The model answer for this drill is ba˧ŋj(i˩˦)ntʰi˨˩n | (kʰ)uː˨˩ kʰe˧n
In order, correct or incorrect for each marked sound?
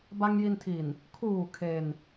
incorrect: i˧, correct

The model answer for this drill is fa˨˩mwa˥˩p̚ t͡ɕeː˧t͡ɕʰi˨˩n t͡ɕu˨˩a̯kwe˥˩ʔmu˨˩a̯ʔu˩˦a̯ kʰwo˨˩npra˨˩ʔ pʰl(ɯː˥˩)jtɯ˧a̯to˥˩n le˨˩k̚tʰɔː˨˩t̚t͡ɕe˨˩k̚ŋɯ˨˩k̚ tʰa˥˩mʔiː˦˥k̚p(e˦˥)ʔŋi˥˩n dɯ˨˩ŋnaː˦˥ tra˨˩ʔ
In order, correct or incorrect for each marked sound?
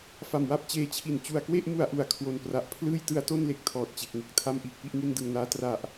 correct, incorrect: i˦˥

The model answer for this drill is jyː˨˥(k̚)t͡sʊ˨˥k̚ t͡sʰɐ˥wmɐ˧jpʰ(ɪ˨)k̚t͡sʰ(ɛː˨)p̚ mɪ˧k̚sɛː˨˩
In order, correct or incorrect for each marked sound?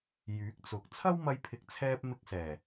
correct, correct, incorrect: ɛː˧

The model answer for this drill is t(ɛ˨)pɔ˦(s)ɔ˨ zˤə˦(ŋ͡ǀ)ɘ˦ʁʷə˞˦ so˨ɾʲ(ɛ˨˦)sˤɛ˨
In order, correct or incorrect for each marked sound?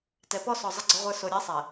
correct, correct, incorrect: ɡ͡ǀ, correct

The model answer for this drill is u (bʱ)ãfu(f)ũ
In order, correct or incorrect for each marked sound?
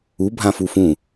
correct, correct

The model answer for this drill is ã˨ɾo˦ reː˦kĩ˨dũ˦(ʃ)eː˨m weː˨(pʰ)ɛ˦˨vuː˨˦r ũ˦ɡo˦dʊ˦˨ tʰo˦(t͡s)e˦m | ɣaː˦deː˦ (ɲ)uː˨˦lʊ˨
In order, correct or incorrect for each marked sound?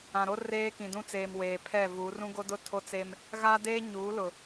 incorrect: t͡s, correct, correct, correct

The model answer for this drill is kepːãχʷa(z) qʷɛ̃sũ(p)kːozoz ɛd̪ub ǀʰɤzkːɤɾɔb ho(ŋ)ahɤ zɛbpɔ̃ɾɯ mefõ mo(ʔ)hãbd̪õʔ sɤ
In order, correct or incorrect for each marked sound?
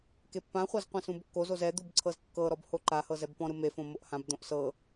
correct, incorrect: b, incorrect: ǃ, correct

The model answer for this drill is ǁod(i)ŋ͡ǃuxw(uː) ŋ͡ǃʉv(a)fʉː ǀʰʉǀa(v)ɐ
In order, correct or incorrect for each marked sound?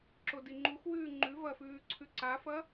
correct, incorrect: ʉː, incorrect: ɐ, incorrect: f

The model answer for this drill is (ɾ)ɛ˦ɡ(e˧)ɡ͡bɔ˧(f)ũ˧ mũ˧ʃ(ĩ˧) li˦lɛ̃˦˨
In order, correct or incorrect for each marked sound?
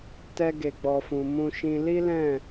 incorrect: t, correct, correct, correct

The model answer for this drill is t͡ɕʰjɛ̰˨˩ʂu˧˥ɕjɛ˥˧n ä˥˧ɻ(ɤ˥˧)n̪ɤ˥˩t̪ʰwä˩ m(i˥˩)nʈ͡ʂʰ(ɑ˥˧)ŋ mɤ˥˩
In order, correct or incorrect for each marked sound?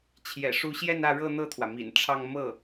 correct, incorrect: ḭ˨˩, correct

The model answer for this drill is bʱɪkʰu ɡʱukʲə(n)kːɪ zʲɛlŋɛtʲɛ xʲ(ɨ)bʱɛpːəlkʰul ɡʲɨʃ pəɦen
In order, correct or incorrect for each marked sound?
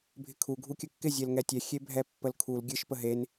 incorrect: none, incorrect: e

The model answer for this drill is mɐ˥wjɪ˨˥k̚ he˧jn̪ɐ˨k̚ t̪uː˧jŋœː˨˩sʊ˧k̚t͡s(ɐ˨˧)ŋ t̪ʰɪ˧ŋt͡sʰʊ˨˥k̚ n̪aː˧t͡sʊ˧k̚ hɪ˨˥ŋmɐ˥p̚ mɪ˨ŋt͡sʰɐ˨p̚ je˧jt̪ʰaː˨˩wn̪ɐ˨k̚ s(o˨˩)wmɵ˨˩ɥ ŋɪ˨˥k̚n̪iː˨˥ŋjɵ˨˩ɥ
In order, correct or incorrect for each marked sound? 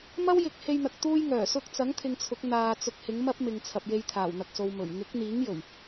incorrect: ɐ˨˥, incorrect: o˨

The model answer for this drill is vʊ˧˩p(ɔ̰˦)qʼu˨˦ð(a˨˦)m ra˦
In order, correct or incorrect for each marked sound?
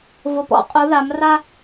correct, correct

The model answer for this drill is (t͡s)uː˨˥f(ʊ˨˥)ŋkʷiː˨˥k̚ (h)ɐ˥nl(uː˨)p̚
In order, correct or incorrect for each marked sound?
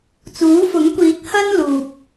correct, correct, correct, correct

